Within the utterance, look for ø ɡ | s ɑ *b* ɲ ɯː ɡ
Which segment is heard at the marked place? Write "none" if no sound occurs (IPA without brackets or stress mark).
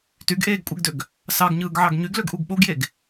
ɡ